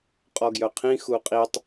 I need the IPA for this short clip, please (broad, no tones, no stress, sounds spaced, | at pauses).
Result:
qʼ ɔ ɡ j œ qʰ ĩ x u qʼ i tˤ